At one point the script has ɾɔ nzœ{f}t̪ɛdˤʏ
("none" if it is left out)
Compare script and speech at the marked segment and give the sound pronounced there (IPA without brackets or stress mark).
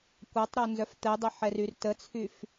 f